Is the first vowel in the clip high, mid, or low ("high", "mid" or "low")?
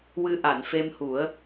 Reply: high